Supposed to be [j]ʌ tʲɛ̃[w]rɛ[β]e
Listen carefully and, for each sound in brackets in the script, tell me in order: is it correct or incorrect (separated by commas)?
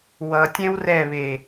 incorrect, correct, correct